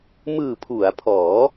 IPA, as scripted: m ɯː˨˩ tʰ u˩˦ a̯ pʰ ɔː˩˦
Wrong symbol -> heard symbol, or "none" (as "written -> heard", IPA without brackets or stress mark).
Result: tʰ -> pʰ